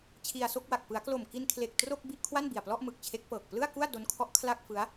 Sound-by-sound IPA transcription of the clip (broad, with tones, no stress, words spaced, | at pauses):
t͡ɕʰi˧a̯so˥˩k̚wa˨˩k̚ pɯ˩˦a̯klo˨˩mki˧nkʰle˨˩k̚ tro˥˩k̚bi˥˩ʔ kʰwa˥˩nbi˨˩a̯plɔ˥˩ʔ mɯ˨˩k̚t͡ɕʰe˦˥k̚pɤː˨˩k̚ plɯ˥˩a̯ku˥˩a̯do˦˥nkʰɔ˦˥ʔ kʰla˥˩k̚fɯ˦˥a̯